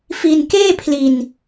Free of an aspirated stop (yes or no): no